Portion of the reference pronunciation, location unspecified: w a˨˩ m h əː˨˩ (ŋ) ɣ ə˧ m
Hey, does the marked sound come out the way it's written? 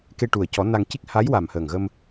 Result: yes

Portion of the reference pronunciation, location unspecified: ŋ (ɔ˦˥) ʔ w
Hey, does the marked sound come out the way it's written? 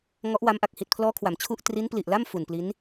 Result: yes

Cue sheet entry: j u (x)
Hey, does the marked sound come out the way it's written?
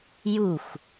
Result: yes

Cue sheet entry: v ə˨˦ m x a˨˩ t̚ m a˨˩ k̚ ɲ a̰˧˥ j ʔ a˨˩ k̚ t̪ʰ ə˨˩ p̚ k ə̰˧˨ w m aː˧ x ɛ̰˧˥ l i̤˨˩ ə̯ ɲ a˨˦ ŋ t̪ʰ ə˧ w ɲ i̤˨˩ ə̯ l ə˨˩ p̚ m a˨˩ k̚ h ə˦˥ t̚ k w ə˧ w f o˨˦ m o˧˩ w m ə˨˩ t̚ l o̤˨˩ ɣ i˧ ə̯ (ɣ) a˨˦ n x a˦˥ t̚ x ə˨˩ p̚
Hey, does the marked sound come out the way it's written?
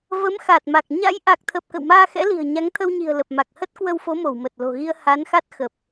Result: no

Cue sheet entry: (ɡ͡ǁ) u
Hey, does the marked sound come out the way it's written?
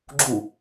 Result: yes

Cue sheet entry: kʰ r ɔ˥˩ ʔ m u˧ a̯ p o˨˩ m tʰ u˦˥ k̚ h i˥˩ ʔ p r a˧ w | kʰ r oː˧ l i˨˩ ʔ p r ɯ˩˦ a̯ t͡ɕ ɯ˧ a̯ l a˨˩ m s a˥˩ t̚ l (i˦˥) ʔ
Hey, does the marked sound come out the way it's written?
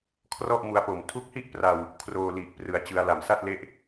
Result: no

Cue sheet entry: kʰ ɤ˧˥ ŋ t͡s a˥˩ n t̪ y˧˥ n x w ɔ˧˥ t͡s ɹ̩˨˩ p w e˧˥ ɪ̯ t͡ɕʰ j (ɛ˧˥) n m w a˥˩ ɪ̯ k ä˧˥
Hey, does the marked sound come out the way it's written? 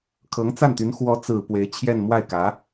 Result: no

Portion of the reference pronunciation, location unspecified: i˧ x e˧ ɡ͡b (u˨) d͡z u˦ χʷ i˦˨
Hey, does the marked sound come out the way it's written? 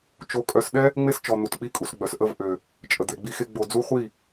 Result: no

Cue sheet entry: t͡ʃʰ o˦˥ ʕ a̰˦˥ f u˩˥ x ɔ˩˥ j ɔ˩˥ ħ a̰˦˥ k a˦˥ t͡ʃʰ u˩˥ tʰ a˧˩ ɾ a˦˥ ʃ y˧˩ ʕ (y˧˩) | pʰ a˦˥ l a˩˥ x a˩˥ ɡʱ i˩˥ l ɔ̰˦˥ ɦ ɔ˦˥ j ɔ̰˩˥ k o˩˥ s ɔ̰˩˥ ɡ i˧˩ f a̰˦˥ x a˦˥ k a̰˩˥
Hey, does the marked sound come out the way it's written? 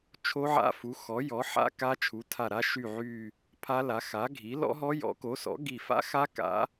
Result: yes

